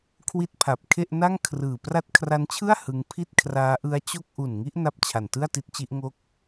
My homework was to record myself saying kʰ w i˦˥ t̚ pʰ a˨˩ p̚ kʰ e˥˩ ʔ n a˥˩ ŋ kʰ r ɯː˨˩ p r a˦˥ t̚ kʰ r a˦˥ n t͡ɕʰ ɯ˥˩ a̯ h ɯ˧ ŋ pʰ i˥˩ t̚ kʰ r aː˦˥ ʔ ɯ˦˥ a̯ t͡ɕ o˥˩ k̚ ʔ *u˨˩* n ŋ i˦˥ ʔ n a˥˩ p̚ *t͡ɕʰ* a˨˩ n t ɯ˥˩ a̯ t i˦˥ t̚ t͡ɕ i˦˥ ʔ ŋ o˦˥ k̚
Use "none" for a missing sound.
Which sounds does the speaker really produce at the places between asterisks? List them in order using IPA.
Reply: u˨˩, t͡ɕʰ

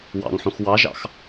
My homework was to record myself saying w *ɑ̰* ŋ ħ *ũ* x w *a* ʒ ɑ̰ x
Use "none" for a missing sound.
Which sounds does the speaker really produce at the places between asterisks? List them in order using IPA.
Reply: ɑ̰, ũ, ɑ

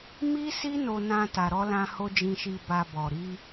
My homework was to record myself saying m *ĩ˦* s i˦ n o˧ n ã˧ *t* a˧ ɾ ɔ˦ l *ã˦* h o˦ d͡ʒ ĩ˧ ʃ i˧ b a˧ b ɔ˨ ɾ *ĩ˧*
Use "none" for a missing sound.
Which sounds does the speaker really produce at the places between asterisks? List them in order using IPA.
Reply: i˦, t, ã˦, i˧

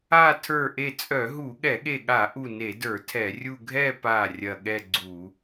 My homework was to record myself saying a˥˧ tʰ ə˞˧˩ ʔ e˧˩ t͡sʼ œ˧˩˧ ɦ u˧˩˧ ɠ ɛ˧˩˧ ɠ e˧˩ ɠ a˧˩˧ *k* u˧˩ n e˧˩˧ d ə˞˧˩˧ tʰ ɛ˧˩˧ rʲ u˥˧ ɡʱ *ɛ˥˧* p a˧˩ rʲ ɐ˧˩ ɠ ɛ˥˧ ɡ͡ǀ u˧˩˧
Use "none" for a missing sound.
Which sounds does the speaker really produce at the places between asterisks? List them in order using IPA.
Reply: ʔ, ɛ˥˧

